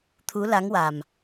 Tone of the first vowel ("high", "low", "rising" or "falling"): rising